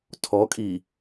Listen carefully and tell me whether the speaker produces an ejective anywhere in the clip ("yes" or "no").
yes